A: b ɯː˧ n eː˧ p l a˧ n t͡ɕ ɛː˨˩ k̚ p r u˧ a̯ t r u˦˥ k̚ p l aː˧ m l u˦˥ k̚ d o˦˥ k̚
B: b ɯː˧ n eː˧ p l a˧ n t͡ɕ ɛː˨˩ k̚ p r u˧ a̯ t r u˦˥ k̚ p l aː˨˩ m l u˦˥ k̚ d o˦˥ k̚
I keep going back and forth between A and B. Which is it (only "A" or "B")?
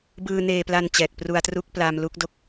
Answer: A